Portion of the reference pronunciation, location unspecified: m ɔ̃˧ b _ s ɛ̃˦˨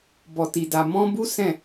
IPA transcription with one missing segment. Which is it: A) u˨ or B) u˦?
B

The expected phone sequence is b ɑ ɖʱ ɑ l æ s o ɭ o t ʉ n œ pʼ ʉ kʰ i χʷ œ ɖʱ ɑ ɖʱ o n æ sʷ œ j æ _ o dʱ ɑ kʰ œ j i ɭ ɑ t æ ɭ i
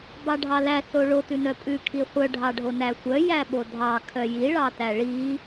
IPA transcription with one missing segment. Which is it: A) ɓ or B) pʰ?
A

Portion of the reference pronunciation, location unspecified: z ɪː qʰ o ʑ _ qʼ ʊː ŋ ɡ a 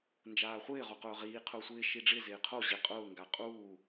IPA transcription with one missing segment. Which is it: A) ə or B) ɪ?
B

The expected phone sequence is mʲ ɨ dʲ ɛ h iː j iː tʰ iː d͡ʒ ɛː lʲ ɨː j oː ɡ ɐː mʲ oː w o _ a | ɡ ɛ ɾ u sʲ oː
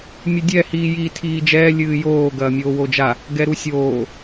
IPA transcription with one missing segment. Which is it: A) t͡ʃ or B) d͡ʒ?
B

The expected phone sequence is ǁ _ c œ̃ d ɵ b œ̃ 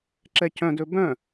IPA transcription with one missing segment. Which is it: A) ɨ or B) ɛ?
B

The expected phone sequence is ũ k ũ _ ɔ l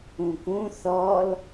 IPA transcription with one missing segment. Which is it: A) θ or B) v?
A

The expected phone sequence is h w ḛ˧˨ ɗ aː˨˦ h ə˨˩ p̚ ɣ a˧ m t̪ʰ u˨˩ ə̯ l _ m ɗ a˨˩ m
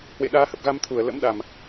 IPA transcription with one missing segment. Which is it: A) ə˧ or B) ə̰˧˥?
B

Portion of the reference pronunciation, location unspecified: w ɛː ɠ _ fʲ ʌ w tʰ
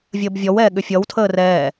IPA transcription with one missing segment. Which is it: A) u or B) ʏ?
B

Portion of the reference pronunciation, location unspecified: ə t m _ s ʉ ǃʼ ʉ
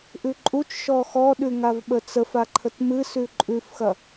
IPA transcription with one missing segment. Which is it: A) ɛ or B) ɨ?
B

